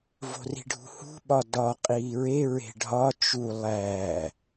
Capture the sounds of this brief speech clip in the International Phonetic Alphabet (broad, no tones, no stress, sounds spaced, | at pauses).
v o̤ r i̤ ɖʱ ṳ h ṳ ɓ ɒ d ɒ qʼ iː ɹ e ɹ e̤ ɖʱ ɒ t͡ʃ u lˠ æ